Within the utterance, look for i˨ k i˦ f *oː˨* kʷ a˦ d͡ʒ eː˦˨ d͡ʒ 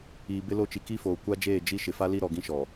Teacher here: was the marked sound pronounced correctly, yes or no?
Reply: yes